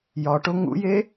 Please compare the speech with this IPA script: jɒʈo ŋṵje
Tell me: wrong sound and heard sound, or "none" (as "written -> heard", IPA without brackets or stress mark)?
none